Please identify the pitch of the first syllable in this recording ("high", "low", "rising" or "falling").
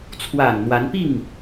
low